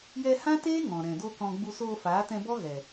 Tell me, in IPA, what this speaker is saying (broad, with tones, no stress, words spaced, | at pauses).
jɛ˧hã˦teː˦ ŋɔ̃˨ɾɛ̃˨do˦kɔ̃˧ ɡ͡bu˧soː˧faː˨˦tɛ̃˧ bɔ˦ɣɛ˨